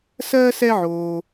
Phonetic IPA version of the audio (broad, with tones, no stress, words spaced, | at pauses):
sɜː˥sɛ˦ʕoː˩